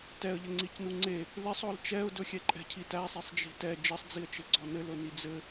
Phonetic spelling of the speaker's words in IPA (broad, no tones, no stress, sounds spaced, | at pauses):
t ɛ ə̯ ʎ ɘ ŋ͡ǀ i c n u ŋ͡ǀ e | l ɪ sˤ ɔ l t͡ʃ ɛ ʊ̯ d ɵ xʲ ɛ ǃʼ ɛ̤ cʰ i t æ sˤ e sˤ d͡ʒ i̤ t ɛ d͡ʒ ɘ sˤ d͡z i ə̯ t͡ʃ ɘ ɡ͡ǀ ɔ n ɘ l ɵ n i d͡z ɘ